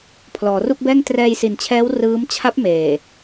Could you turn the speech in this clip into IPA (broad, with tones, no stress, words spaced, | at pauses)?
pʰlɔː˩˦ru˥˩k̚bɛː˥˩ŋ trɛː˧jsi˨˩nt͡ɕʰɛː˦˥w rɯː˦˥m t͡ɕʰa˦˥p̚ meː˨˩